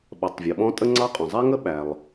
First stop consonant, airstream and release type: implosive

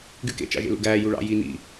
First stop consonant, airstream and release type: plain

